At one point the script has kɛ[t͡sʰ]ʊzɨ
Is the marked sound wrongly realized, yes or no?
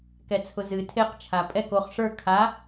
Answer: no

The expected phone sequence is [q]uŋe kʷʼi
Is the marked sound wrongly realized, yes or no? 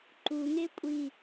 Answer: yes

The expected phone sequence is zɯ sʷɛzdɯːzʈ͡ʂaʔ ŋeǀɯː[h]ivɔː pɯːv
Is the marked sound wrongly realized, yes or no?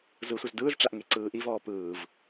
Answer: yes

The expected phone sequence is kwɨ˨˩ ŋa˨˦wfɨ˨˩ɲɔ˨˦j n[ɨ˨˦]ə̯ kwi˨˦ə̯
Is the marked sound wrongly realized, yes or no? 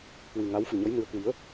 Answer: no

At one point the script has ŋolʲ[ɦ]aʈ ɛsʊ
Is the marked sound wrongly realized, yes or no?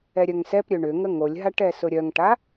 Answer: no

